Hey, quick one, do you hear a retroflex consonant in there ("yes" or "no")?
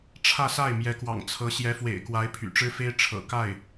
yes